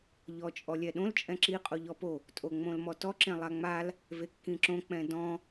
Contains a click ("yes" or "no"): yes